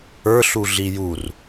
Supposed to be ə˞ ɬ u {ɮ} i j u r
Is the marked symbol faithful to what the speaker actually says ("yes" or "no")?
yes